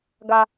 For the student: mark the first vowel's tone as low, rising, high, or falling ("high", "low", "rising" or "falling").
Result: high